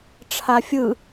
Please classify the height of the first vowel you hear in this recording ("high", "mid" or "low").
low